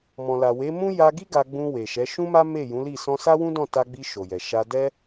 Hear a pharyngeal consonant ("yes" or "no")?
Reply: no